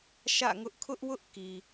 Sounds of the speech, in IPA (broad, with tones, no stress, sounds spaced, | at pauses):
ʃ ä̰˦˨ ŋ ʊ˦ ʔ kʰ ʊ˦ ʔ w ʊ˦ ʔ k i˨